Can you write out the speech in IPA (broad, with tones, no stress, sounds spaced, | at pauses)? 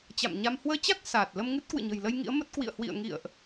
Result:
t͡ɕ a̰˧˨ m ɲ a˧ m h w əː˧ t͡ɕ a˦˥ k̚ s aː˨˩ t̚ l ə˧ m ŋ ɨ˦˥ t̚ k w ɨ̰˧˨ ɲ ə̤˨˩ j l ə˧ j ŋ ḭ˧˥ ə̯ m ə˦˥ t̚ k w ḭ˧˨ ə̯ h w ḭ˧˨ ə̯ ŋ ḭ˧˨ ə̯ ʔ